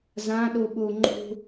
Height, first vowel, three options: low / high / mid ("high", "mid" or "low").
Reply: low